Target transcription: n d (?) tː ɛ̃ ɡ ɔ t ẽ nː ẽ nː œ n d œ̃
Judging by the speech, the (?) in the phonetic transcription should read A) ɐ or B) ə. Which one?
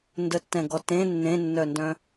B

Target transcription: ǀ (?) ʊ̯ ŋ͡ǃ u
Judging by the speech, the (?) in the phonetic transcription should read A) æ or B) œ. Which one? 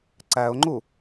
A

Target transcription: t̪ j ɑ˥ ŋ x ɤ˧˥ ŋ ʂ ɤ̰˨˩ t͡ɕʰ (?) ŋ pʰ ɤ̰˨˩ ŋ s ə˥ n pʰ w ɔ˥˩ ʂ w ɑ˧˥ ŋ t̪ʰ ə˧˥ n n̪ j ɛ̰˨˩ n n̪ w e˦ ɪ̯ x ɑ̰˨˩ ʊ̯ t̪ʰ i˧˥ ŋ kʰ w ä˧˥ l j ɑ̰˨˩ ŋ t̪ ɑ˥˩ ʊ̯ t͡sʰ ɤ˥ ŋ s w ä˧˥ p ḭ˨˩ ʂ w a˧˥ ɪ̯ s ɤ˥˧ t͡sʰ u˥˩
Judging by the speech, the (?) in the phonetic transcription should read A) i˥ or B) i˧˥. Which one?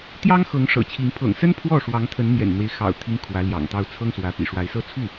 B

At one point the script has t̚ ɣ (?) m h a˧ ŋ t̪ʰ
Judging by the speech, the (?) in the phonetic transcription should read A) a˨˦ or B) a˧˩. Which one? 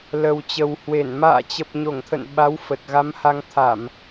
A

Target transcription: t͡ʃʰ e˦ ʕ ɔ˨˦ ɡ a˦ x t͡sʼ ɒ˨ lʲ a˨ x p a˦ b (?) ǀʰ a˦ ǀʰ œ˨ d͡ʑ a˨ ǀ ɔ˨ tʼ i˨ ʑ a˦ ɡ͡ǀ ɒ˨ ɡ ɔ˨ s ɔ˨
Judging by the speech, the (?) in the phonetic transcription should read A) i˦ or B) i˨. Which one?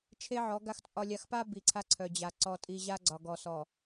B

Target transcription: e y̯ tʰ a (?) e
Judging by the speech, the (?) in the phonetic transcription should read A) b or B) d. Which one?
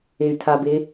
A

